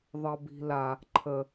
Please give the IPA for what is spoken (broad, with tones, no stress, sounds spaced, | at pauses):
ðˤ ʌ˨ b i̤˨ l a˨ | ǃʰ ə˨